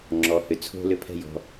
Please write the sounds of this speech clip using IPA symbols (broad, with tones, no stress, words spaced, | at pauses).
ŋ͡ǁɔ˩hʏ˩t͡sʰo̤˧ lʏ˧pʰɛ̤˧jɔ̤˩